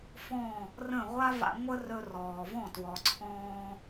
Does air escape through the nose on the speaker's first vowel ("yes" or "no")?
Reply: yes